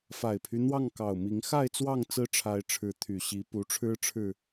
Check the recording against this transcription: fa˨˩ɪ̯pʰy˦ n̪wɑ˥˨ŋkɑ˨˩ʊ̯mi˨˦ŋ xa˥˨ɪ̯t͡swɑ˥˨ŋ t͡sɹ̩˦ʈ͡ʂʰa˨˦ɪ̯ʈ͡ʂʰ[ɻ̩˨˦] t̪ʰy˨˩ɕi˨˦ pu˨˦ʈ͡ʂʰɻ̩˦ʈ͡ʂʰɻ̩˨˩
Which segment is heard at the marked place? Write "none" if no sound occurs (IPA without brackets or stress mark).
ɻ̩˨˦